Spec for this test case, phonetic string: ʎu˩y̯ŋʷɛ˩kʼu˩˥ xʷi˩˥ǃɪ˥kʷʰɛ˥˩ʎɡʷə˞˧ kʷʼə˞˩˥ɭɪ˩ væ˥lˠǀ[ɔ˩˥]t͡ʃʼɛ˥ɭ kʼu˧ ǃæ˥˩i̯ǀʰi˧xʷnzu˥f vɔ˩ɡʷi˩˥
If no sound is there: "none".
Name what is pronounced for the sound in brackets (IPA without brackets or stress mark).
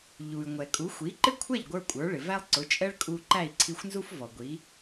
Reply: ʊ˩˥